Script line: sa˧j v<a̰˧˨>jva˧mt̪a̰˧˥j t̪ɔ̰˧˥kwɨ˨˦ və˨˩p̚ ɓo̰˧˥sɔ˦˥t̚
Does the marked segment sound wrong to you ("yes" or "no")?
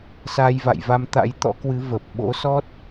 no